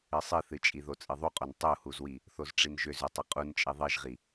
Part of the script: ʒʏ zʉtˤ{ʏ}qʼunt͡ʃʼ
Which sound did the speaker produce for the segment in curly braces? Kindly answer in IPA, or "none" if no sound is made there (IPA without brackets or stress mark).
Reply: ʏ